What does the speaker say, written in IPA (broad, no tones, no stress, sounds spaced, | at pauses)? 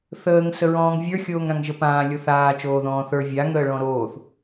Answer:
θ əː ŋ s ə ɹ ɔ̃ː ŋ vʲ ə˞ xʲ oː ŋ ɾ ã ŋ ʒ ə p ãː lʲ o θ aː t͡ʃ oː ð ɔ̃ː θ ə˞ vʲ a ŋ əː ɭ ɔ̃ ɾ oː θ